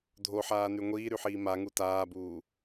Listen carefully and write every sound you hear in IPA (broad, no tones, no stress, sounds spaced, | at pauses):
dʱ o ħ aː n y ŋʷ iː ɾ y ħ iː m a ŋ u t aː b uː